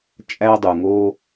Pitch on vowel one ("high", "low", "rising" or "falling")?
high